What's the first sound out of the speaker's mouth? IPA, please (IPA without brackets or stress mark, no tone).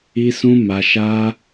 i